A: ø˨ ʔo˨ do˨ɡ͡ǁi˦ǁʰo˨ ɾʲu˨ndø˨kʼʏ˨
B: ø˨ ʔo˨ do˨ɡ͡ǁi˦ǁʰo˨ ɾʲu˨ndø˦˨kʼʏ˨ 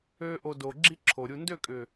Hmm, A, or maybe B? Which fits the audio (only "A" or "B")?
B